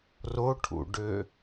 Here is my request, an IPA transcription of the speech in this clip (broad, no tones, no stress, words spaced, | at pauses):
roʈʰṵɖø